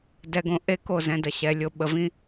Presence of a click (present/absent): absent